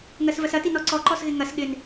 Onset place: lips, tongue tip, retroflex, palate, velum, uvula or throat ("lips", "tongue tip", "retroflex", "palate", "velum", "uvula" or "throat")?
velum